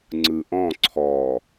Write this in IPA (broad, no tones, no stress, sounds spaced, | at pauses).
ŋ͡ǀ ɯ ʔ ɔ̃ ǀʰ ɔ